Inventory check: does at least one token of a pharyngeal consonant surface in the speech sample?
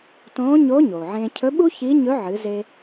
yes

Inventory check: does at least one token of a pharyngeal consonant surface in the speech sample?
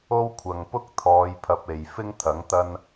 no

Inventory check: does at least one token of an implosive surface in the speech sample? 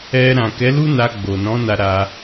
no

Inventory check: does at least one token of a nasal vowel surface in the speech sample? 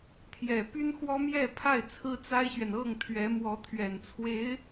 no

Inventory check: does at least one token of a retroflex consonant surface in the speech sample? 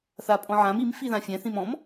no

